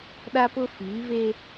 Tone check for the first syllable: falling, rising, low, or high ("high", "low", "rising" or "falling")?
high